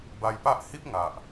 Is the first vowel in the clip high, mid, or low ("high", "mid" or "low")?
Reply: low